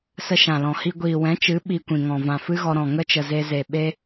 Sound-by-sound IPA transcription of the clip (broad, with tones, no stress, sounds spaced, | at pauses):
s ə˦ ʃ ã˨ l ɔ̃˨ h i˦ ɡʷ iː˨ w ɛ̃˨˦ t͡ʃ ɨ˨˦ ɓ i˧ kʷ ĩ˨ ŋ ɔ̃˨ v ã˨ f ɨ˦ ɣ ɔ˧ ɾ ɔ̃˨ ŋ ə˦ t͡ʃ ə˨ z e˧ z e˨ ɓ e˦